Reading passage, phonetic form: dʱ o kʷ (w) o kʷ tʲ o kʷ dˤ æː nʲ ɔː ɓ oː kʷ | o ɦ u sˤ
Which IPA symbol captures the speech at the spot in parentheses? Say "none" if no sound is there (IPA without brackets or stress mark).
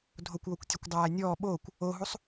w